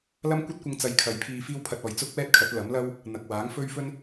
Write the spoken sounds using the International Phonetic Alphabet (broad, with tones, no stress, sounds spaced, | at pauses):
l ɐ˥ m kʷ ɐ˥ t̚ kʷ ɪ˧ ŋ t͡s ɐ˨˧ j kʰ ɐ˨˧ j pʰ iː˧ f iː˥ w pʰ ɐ˧ t̚ ɔː˨ j t͡s ʊ˥ k̚ w ɛː˥ t̚ kʰ ɐ˨˥ t̚ l ɐ˨˥ m l ɐ˥ w | n̪ ɐ˨ k̚ w aː˨˥ ŋ f ɵ˥ ɥ f ɵ˥ n